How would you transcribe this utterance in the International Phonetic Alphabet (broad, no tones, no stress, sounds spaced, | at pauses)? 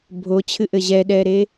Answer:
bʱ o t͡ɕʰ ɨ ʔ ɘ ʑ ɛ ɗ ɛ ɾ e